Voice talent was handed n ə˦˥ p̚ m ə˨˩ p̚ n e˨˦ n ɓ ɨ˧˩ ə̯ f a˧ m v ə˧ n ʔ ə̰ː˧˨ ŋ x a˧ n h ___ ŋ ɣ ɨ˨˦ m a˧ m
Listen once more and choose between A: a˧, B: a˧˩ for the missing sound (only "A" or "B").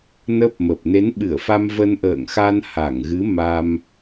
B